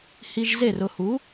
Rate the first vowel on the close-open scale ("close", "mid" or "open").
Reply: close